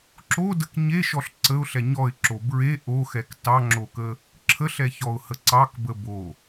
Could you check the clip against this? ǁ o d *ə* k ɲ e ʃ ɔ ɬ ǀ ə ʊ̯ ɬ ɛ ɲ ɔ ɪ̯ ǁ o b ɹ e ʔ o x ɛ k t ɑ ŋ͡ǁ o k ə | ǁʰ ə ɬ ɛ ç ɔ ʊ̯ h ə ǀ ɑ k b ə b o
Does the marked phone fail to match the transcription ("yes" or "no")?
no